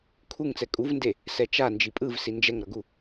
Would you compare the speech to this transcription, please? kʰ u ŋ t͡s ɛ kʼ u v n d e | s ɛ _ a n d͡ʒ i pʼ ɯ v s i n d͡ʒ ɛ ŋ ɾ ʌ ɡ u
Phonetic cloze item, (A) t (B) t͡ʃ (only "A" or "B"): B